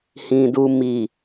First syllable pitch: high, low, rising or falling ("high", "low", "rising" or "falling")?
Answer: low